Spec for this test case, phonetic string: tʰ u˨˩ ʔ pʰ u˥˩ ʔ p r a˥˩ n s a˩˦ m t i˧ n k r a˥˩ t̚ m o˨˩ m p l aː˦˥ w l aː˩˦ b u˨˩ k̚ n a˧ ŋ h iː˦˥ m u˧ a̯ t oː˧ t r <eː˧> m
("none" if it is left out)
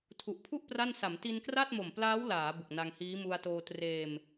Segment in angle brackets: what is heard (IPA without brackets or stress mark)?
eː˧